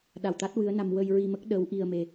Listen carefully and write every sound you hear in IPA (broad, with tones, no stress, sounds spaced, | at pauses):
ɗ a˨˩ w t̪ a˦˥ t̚ w ɨ˧˥ ə̯ n a˧ m w ə˧ j ɹ i˧ m ə˦˥ k̚ ɗ ə˧˥ w ʔ i˧ ə̯ m e˧